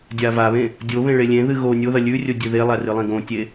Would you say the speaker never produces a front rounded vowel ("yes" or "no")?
yes